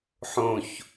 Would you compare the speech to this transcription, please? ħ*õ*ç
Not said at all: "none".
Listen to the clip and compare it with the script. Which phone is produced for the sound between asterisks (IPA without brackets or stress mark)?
õ